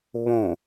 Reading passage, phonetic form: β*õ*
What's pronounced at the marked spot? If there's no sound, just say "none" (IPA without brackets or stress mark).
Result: õ